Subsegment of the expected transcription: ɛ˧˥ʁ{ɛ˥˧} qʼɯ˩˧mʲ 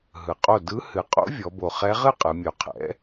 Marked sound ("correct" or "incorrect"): incorrect